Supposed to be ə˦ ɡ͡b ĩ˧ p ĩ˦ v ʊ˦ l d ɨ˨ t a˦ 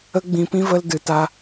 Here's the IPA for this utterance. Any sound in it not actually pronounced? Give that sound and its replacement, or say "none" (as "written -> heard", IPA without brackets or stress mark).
ʊ˦ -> ə˦